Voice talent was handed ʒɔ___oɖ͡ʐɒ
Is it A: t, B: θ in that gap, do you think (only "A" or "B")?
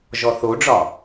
B